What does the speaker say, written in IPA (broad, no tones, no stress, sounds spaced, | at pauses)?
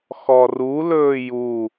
x ɔ r u l ɵː j u